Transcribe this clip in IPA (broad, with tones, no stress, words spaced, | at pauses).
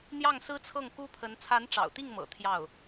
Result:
n̪jɑ˥˩ŋsɹ̩˥t͡sʰɤ˥˩ŋ ku˥pʰə˧˥n t͡sʰa˧˥nʈ͡ʂɑ̰˨˩ʊ̯t̪i˥˩ŋmɤ̰˨˩ t̪ʰjɑ˥˩ʊ̯